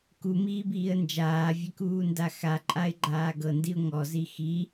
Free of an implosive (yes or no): yes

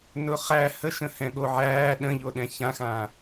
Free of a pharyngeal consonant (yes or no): no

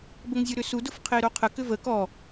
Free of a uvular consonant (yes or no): no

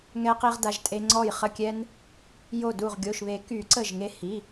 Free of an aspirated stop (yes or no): yes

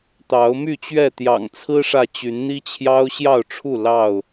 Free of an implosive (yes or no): yes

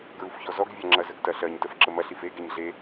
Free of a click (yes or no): no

